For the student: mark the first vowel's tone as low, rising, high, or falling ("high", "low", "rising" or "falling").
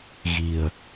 low